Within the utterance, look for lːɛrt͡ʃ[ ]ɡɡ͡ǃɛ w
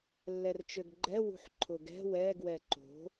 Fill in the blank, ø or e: ø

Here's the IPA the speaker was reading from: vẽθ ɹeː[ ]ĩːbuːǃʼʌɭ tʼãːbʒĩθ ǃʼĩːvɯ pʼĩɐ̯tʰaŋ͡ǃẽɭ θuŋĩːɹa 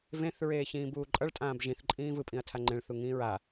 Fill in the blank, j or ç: ç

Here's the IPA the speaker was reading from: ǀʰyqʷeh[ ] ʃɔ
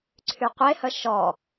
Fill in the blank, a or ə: ə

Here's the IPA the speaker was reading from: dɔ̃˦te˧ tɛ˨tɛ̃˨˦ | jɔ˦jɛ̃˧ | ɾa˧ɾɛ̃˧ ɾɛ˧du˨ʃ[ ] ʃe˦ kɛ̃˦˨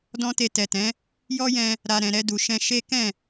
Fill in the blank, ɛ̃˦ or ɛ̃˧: ɛ̃˧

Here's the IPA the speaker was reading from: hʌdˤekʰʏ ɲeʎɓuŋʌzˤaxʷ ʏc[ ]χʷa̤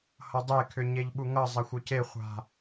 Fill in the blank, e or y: e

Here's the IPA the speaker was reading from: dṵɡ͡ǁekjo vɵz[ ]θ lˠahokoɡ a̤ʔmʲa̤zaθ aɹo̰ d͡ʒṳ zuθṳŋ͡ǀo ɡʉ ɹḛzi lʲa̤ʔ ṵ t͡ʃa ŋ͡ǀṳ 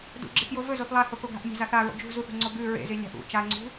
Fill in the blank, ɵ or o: o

